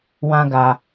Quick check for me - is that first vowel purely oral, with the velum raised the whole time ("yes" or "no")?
no